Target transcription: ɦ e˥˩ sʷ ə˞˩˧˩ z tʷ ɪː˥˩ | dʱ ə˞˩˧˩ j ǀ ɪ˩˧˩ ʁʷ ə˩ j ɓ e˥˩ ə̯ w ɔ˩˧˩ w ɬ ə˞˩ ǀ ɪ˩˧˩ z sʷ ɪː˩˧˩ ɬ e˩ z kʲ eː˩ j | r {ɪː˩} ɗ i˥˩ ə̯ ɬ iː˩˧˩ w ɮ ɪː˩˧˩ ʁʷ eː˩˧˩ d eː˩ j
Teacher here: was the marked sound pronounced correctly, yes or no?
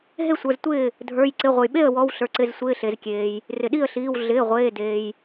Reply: no